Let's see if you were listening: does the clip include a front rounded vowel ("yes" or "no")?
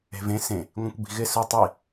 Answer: no